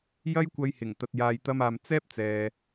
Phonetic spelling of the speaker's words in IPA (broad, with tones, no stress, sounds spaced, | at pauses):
j ɐ˥ j kʷ ɐ˧ j h ɪ˨˩ ŋ t̪ ɐ˨ t̚ j aː˨ j t̪ ɐ˧ m aː˨ m t͡s ɛː˥ p̚ t͡s ɛː˨